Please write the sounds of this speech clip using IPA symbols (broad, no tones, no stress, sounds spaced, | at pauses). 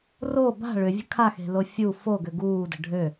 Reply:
r o b a̤ ɭ ʏ vʲ ə̤ kʰ a x e̤ l o fʲ u f o ɡ ʏ ɡ uː d ə̤ ɖʱ ø